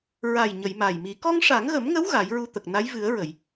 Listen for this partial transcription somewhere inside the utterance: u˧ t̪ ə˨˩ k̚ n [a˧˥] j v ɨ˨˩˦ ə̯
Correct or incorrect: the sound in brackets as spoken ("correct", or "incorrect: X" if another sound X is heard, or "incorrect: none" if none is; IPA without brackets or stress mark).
correct